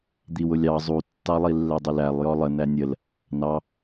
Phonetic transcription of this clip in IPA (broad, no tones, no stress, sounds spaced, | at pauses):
d̪ i w ʊ lʲ ɑ zˤ u tː ɑ lˠ i lː ɛ dˤ ɪ l æ lˠ j ɔ lˠ ə n æ nʲ ə l | n ɑ